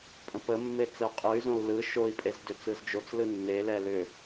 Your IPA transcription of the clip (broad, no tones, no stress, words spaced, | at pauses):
pʼə̃pəmːe t͡səu̯qʼɯy̯zõu̯ lɯ ʃoi̯pʼez dʏt͡sɯzd͡ʒot͡slɯ nːelɛ lʏ